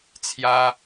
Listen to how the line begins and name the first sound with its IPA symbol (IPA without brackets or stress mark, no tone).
t͡sʰ